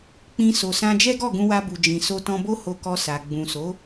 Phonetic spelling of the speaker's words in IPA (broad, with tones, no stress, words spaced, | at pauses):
k͡pĩ˧ so˨sã˧d͡ʒɛ˦ɡɔ˦˨ ɡũ˧wa˧bu˨ d͡ʒĩ˨ so˧tɔ̃˧bo˦ ho˧kɔ˧ sa˨ ɡ͡bũ˨so˨˦